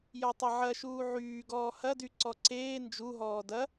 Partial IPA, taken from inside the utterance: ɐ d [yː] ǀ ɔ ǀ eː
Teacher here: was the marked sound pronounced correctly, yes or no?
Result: no